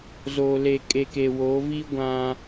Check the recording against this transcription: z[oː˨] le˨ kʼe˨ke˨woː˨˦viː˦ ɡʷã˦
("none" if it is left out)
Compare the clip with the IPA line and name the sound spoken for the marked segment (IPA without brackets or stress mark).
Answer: o˨